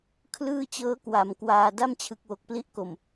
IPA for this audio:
kʰ l ɯː˥˩ t͡ɕ ɤː˦˥ k w a˩˦ m k w aː˨˩ d a˥˩ m t͡ɕʰ ɯ˨˩ k̚ w o˨˩ k̚ p l i˦˥ ʔ k o˨˩ m

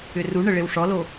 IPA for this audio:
ʏ r u ɳ ə ɭ e w ʂ ɔ l o

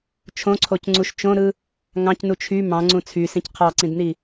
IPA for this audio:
t͡ʃʰ õ ǀʰ o c ŋ͡ǀ u ʃ t͡ʃ õ ɾ ɯ | ŋ ɑ̃ c n u t͡ʃʰ y m ɑ̃ ŋ͡ǀ ũ t͡sʰ y s ĩ c qʰ ɑ ǀ ĩ d n i

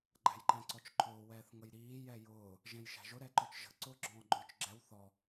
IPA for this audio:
ɡ͡ǃ æ̤ j ǃ æ̃ ǀ ɔ t͡ʃ ǃʰ ʊː w ɛː θ ŋ ə j ɾ iː j ɛ j ʊː | ʒ ɛ̃ j ʃ æ̤ ʒ ʊ ɾ ɛ ǃ ɔ t͡ʃ ʒ ə̤ ǀ ʊː ɡ͡ǁ ɔ̃ː ɡ͡ǃ ʊː t͡ʃ ɡ͡ǁ ɛ w θ ɔ

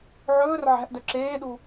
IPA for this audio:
ʕ ɵː r ʕ æ̤ ʔ d œ ǁ eː ɗ u

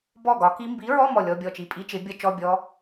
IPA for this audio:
b ɔ˥˨ ɡ ɒ˨˥ k i˦˥ m b i˨˥ ɹ ɔ˧˥˧ m ɔ˥˨ lʲ ɔ˧˥˧ bʲ ɔ˥˨ t͡ʃ i˧˥˧ pʼ i˦˥ t͡ʃ ɪ˨˥ bʲ ʌ˦˥ t͡ʃ ɔ˧˥˧ bʲ ɔ˦˥

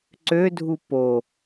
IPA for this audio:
ǀ ø dʱ u p o

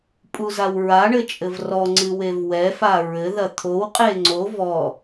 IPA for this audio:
pʼ u z a w ɹ a ɳ ɘ t͡ʃʼ ɘ v r ɔ ŋ͡ǀ ɨ w e v w ɛ f a ɹ ɘ ð ɐ t̪ʰ o w qʼ e ŋ͡ǀ o v ɔ

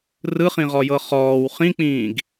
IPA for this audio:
r ɯ χ ĩ ʁ ɔ j ɤ χ ɔː w χ ĩ k͡p ĩː ɡ

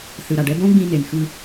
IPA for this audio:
θ ɯ˩ ɾ a˩ ɖ ɛ˧ b õ˥ ɡ͡b ĩ˧ n e˩ n x ɯ˧

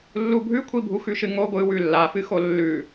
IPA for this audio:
lː u bʱ ʉ kʷʰ i bʱ u x ʉ ʃ ɨ ŋ o ɡʷ ɨ w ʉ lː a f ɨ x o lː ʉ

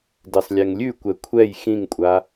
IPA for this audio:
d e sˤ lʲ ɛ ŋ lʲ ʉ kʷ ɛ kʷʰ ɛ j x ĩ ŋ kʷʼ a

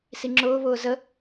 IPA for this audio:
s i ŋ͡ǁ ʊː β ʊː z ə

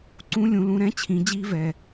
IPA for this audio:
ǀ ũ˧˥ lʲ ũ˩˧ l ũ˩˧ ɾ ɛ̃˧˥ t͡ɕʰ ĩ˩˧ d͡ʑ i˧ v ɛ˩

